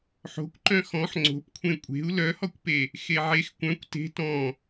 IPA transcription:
ħ o̤ kʷ ǃ œ̃ x ɔ̃ ħ ŋ͡ǀ o̤ p kʷʰ ẽ kʷʼ e̤ u̯ l œ h ɔ kʷ p e | x e ʕ e x kʷ œ̃ kʷ t e̤ t ɔ̃

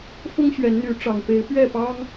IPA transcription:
f ʊ˦ ŋ ɕ ɥ ɛ˨˦ n n̪ y˨˦ ʈ͡ʂ ɑ˨˩ ŋ p e˨˦ ɪ̯ p ɥ ɛ˥˨ p ɑ˦ ŋ

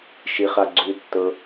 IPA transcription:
ʃ i χ a ɡ͡ǀ ʉ tː ɤ

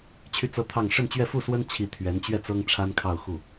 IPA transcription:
t͡ɕʰ y˥˧ t͡s ɤ˥˧ t̪ʰ ɑ˥˧ ŋ ʂ ə˥˧ n t͡ɕ ɥ ɛ˥˧ f u˥˩ s w ə˥ n t͡ɕʰ i˧˥ t̪ʰ ɥ ɛ˧˥ n t͡ɕ ɥ ɛ˥˩ t͡s ɤ˥ ŋ ʈ͡ʂʰ a˥ n kʰ ɑ˥˧ ʊ̯ x u˥˩

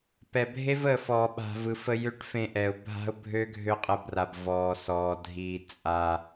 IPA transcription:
p ɛ˨ bʱ e˦ v ə˨ f ɔː˨ ɓ a̤˨ v ɯ˨ f ə˧ j ø˦ ʈ f ẽ˧ ʔ ɛ˨ ʊ̯ bʱ a̤˦ ʊ̯ bʱ ø˦ ɡʱ ø˦ qʼ ə˧ b r a˨ b v ɔː˨ s ɔː˨ dʱ iː˧ t͡sʼ a˧

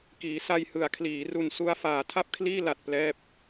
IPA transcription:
k iː˩˦ s a˧ j h ɯ˩˦ a̯ kʰ l iː˩˦ r u˨˩ n s u˧ a̯ f aː˩˦ tʰ a˥˩ p̚ kʰ l iː˥˩ l a˨˩ t̚ p l ɛː˦˥ p̚

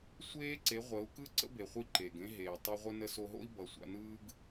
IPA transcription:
sʷ eː˦ ǀ e˨˦ ʁʷ əː˨˦ u̯ k ɯ˦ ǀ ə̰˦ b e˨ χʷ i˧ ǃ e˨ ɡ ẽ˦ ɦ eː˨ tˤ i˧ ʁʷ ə˦ n ə˧ s o˧ ɦ o̰˦ i̯ b ʌ˨ sʷ a̰˧ n ɯː˦ ɡ

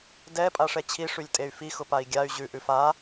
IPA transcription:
d ɛ pʼ a ʂ ɛ t͡ɕʰ i ʂ ʉ lʲ tʼ e y̯ f i x ʊ p a i̯ ɡʲ a y̯ ʑ ʉ ʔ ʉ f a

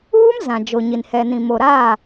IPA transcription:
uː˦ m z ã˨ d͡ʒ o˨ ɲ i˨ n h ɛ˨ n ĩ˨ m o˨ ɾ aː˦˨

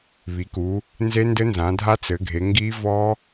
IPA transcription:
β i˩˧ k u˩˧ | n z e˦˥ n d ɘ˦˥ n z ã˩˧ dʱ a˦˥ t͡s ɘ˩˧ ɡʱ e˩˧ ŋ ɡ i˦˥ v ɔ˦˥

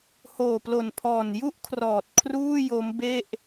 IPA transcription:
h oː˨˩ p l o˨˩ n pʰ ɔː˨˩ n j u˥˩ ʔ kʰ r ɔː˨˩ t̚ kʰ r uː˥˩ j o˦˥ m b e˥˩ ʔ

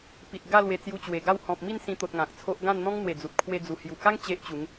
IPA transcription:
p i˨ t̚ ɡ a˥˧ l w e˧ t͡s j u˧ t͡ɕ w e˨˩ ɡ a˥˧ w h ɔ̃˨ p̚ m i˥˧ n s ĩ˧ t̪ o˨ t̚ ŋ ã˨ k̚ t͡sʰ o˦ ʔ ɡ ã˥˧ n n̪ ɔ̃˦ ŋ n̪ w e˨˩ d͡z u˨ t̚ kʰ w e˧ d͡z u˨˩ h j u˨˩ k a˦ ŋ t͡ɕ e˦ ʔ t͡ɕ u˨˦ ŋ

